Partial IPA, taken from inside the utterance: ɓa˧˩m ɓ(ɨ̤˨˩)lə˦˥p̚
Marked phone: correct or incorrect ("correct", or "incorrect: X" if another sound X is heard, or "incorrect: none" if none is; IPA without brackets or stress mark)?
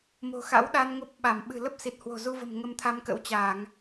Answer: correct